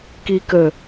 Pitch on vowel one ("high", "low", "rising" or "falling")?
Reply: low